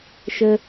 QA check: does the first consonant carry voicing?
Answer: no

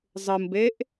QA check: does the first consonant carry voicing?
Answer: yes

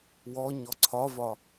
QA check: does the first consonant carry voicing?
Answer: yes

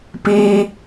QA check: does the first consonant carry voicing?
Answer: no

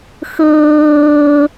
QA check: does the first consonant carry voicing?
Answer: no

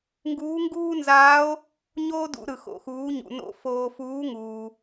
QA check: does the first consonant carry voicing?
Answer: yes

